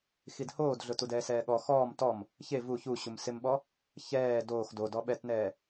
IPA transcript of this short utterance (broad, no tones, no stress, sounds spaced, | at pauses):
x i d h oː d ɮ ʊ t u d ɛː s ɛː ɠ ɔ x ɔː m t ɔ m | ç e v u ç u ɕ u m s ɪ m ɓ ɔ | ç ɛː d oː x d o d ɔ ɓ ɛ t n ɛː